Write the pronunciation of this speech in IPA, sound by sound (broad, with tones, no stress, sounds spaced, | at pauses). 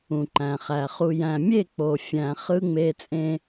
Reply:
ũ˨ ǃ æ̃˨ χ æ˨ χ u˨ j æ̃˨ mʲ e˦˨ k͡p o˨ fʲ æ̃˨ χ ɯ˦ ŋ͡m e˦ t͡sʼ ẽ˦